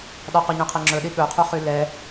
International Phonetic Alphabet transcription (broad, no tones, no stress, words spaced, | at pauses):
ɗɑqoɲœ̃qʰe ŋ͡ǁɵɗi ɠɵqʰuχy lɛ